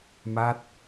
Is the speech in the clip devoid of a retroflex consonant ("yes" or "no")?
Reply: yes